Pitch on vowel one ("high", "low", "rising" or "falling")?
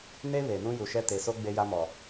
high